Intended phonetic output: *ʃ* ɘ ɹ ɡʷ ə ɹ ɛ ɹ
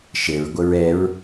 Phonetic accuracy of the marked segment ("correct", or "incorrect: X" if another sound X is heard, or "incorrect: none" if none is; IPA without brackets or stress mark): correct